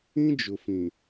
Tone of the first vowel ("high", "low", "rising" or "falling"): high